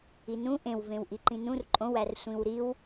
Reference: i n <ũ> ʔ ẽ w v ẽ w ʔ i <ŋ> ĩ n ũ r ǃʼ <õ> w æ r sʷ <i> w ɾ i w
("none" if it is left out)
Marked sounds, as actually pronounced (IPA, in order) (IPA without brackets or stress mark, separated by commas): ũ, ǃ, õ, ĩ